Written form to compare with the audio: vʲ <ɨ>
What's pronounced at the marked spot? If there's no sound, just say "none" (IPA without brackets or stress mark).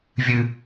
ɨ